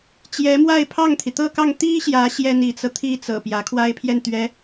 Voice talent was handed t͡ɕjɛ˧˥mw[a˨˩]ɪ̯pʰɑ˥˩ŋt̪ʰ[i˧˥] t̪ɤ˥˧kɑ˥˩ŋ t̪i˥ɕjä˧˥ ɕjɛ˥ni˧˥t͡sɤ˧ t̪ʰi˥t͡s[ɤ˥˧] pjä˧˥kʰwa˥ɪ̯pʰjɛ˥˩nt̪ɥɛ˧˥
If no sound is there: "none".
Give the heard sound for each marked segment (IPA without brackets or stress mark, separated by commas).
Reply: a˥˧, i˩, ɤ̰˨˩